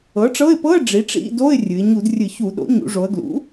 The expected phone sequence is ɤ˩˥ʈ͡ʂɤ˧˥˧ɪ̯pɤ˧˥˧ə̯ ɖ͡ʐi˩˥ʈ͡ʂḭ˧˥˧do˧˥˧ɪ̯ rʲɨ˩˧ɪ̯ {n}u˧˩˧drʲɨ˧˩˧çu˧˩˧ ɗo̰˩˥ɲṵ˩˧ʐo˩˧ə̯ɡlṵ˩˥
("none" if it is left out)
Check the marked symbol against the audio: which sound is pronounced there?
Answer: ɲ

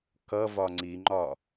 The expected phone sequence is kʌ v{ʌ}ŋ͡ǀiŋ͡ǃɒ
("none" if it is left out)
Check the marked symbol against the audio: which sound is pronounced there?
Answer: ɒ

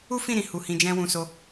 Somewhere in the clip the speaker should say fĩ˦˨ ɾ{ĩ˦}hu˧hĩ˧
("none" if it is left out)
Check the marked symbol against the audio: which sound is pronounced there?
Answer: ĩ˨˦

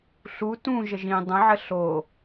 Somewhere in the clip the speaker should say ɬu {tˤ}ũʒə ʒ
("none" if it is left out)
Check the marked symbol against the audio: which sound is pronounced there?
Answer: t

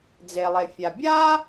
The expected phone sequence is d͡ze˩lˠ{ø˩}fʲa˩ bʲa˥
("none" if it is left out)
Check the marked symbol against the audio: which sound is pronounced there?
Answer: e˩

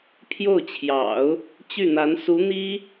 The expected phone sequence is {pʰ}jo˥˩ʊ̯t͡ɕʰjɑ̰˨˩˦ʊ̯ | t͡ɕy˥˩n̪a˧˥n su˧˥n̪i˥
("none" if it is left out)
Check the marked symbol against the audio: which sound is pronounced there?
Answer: pʰ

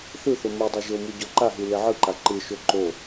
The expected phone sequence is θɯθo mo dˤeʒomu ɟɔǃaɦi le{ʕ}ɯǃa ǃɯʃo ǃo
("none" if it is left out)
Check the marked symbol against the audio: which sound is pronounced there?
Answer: ʕ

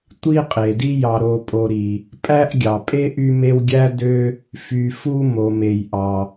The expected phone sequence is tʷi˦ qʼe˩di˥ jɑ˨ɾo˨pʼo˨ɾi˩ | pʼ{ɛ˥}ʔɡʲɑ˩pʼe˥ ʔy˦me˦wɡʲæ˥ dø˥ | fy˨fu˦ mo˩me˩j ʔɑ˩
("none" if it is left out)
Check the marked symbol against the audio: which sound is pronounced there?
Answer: æ˥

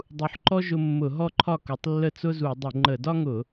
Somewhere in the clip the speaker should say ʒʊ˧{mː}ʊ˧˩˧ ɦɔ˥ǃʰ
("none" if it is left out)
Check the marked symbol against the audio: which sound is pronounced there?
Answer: mː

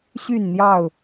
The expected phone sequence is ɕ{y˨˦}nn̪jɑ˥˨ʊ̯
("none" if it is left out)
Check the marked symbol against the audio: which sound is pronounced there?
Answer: y˥˨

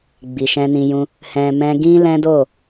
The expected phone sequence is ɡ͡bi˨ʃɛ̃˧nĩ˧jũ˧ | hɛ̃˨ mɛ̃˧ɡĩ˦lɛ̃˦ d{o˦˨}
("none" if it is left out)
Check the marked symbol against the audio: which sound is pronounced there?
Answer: o˦˨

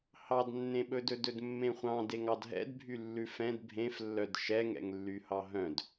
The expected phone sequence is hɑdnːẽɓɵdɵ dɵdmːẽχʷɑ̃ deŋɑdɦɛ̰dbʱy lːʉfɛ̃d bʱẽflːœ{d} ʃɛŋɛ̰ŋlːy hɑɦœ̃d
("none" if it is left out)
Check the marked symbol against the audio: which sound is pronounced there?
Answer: d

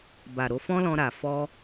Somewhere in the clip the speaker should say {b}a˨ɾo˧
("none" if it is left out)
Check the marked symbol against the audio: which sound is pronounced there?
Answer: b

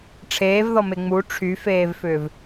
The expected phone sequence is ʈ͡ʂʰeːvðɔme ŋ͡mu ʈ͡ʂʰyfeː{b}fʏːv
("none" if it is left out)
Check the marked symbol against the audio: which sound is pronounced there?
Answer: v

